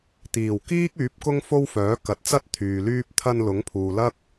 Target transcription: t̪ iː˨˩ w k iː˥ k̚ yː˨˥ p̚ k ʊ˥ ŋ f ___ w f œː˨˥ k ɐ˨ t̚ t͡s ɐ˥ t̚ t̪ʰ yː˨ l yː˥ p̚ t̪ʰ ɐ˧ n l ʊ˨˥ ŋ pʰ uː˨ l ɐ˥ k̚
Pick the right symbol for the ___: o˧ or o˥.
o˥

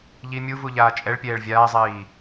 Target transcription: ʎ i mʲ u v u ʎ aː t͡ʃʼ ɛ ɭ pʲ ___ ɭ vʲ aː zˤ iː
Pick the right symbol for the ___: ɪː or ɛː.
ɛː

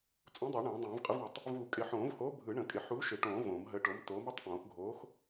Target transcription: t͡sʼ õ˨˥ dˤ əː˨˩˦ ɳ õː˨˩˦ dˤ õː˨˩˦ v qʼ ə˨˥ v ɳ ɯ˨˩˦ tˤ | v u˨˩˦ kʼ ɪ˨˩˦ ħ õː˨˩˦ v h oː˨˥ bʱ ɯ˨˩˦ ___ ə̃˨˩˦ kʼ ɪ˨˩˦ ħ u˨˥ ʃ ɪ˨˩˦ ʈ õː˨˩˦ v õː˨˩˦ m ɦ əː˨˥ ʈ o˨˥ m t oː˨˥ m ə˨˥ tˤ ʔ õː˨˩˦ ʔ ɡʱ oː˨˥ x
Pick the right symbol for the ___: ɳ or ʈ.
ɳ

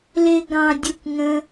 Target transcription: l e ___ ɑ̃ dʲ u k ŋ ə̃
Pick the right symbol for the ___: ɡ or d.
ɡ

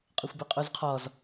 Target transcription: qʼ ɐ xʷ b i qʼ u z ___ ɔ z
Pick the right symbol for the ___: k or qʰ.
qʰ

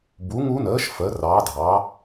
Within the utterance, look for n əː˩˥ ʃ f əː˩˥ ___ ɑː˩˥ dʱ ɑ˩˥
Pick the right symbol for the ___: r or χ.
r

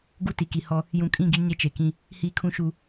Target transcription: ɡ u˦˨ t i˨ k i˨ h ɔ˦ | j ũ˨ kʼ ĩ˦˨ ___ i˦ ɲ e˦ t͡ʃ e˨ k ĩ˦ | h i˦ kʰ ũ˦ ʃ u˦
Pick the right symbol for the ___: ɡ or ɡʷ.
ɡ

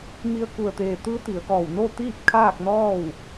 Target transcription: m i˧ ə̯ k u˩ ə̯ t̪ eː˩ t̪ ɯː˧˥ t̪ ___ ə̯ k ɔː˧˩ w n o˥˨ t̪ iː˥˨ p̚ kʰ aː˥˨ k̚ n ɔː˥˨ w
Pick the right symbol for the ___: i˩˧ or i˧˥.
i˩˧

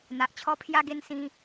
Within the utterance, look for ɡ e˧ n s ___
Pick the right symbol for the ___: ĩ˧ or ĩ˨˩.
ĩ˧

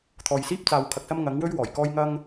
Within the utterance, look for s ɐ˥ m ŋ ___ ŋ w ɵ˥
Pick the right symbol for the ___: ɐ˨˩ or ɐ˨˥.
ɐ˨˥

